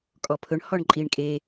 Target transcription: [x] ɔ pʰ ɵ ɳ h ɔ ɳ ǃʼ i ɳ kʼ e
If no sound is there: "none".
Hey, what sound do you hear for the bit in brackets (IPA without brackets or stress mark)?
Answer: kʼ